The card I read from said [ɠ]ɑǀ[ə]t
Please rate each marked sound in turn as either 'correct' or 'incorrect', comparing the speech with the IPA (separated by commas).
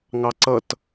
incorrect, incorrect